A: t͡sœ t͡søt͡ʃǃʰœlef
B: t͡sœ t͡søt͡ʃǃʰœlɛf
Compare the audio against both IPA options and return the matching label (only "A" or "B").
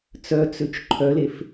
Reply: A